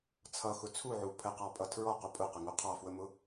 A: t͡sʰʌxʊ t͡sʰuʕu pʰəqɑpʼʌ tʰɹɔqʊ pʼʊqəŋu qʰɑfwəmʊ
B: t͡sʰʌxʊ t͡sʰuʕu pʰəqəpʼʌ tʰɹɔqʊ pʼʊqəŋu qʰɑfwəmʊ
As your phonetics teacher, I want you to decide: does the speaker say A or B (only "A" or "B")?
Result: A